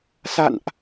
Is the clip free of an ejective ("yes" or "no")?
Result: yes